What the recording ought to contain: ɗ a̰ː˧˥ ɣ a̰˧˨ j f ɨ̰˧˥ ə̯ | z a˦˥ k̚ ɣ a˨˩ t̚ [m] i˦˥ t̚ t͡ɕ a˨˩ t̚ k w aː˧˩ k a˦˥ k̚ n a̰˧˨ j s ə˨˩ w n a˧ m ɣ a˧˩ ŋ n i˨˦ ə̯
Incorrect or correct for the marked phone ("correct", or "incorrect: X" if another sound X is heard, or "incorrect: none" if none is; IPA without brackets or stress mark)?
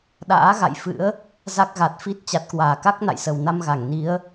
incorrect: f